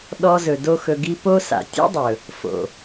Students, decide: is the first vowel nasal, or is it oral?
oral